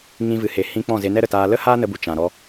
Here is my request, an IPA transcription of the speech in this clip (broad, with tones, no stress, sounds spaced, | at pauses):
ŋ ĩ˧ v ɨ˨ h e˨ h ĩ˧ k͡p ɔ̃˦˨ z e˧ n ɛ˦ ɾ ə˨ t aː˧ l ə˦ h aː˦ n ə˧ b u˨ t͡ʃ ã˨ ɾ ɔ˧